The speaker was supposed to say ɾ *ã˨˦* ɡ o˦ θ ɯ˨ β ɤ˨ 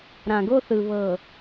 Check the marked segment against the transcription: incorrect: ã˨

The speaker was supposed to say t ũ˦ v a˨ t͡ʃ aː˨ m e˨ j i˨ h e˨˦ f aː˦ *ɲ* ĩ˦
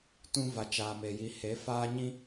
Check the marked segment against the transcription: correct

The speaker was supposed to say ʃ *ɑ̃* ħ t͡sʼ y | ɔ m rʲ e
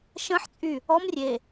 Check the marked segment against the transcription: incorrect: ə̃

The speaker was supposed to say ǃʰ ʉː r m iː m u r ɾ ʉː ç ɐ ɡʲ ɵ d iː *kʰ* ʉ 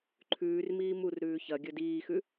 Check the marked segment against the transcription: incorrect: x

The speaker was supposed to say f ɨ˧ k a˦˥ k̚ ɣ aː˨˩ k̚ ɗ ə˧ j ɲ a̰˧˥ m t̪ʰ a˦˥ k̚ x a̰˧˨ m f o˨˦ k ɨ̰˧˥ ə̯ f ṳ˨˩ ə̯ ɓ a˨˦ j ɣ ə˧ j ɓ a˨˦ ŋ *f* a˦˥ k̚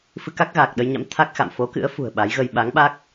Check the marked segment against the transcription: incorrect: ɓ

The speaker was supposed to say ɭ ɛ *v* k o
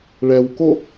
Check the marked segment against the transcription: incorrect: w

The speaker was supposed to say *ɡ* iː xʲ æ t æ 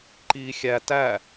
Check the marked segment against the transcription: incorrect: ǃ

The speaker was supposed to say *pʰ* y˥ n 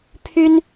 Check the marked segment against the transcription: correct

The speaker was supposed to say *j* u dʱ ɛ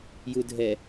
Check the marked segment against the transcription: correct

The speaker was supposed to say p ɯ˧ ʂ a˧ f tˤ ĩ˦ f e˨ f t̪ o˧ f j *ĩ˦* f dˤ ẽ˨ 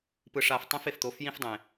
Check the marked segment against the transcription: correct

